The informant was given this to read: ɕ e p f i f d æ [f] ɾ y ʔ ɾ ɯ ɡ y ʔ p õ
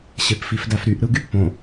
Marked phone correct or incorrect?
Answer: correct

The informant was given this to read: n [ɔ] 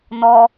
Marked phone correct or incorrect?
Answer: correct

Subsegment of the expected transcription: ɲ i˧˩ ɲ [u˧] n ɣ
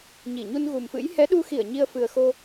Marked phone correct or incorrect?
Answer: correct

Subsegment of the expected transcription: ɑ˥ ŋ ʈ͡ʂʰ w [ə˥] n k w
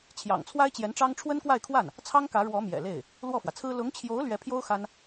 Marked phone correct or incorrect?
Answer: correct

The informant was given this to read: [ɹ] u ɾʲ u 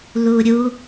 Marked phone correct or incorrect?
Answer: incorrect: l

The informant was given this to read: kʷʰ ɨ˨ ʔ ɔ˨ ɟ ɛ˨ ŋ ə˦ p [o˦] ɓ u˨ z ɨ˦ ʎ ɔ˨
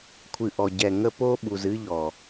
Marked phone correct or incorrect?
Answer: correct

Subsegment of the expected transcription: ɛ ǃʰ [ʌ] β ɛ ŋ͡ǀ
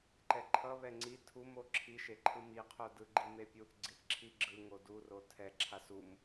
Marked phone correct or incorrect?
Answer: correct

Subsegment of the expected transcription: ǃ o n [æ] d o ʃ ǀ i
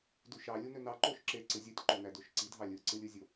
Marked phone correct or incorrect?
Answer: correct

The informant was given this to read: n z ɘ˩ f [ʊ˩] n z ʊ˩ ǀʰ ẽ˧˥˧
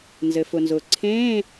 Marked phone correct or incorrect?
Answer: correct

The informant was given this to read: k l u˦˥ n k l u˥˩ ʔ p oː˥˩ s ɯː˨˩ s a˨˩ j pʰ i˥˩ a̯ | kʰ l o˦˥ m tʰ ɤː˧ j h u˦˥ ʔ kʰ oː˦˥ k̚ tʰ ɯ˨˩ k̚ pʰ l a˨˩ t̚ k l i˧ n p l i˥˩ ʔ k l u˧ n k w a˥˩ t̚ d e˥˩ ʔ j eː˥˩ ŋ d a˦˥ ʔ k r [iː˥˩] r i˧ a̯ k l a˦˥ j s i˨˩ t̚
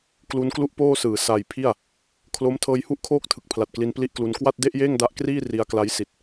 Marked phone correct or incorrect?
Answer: correct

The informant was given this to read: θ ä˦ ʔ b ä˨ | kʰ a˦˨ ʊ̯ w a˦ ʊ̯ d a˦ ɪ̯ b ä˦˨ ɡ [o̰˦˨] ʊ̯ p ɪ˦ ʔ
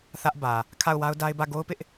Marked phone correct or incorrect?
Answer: incorrect: o˦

